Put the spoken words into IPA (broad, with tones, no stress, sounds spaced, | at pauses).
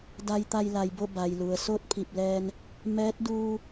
d a˧ j t̪ a˧ j l a˩ j b o˥˨ b a˩ j l u˩ ə̯ s o˥˨ t̚ pʰ i˧˩ p̚ l ɛː˧ n | m ɛː˧˥ t̚ d uː˧